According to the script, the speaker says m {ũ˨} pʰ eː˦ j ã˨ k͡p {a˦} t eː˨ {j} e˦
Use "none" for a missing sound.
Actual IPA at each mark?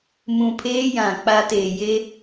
ũ˨, a˦, j

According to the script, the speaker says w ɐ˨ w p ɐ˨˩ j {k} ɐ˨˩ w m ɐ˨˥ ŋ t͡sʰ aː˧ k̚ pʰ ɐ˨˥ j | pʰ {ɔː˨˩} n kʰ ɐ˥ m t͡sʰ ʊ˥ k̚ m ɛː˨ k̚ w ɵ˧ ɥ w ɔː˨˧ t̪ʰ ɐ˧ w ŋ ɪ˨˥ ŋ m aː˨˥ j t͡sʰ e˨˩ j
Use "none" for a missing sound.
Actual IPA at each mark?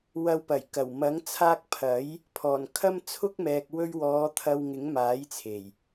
k, ɔː˨˩

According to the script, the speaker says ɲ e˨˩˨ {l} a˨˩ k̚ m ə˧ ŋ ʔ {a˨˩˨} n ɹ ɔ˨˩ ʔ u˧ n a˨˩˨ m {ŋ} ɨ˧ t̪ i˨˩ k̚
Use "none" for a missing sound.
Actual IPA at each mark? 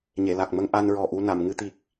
l, a˧, ŋ

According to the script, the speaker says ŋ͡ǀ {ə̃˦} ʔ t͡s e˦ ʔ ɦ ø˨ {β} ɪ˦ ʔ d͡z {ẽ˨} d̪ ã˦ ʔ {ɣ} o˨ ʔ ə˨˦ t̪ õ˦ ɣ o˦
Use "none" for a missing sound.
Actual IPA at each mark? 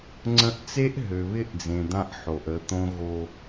ə̃˦, β, ẽ˨, ħ

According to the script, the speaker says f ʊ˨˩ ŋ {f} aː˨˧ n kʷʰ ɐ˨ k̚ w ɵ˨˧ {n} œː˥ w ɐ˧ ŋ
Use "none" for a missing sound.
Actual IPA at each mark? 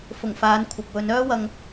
f, n

